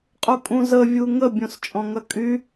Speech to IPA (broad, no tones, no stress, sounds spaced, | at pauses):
qʼ u kʼ ũ z ə vʲ u ŋ ə bʲ õ s t͡ʃʼ ɔ̃ ŋ ɐ kʼ y